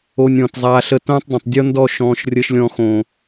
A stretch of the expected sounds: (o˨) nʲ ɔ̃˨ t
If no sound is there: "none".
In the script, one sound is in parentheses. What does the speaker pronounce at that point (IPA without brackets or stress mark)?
o˧